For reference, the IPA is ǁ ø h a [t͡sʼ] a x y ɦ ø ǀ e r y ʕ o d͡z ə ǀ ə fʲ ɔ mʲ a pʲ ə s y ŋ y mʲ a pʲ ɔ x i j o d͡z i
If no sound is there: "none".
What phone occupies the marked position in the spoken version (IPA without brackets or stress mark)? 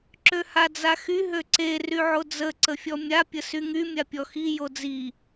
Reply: d͡z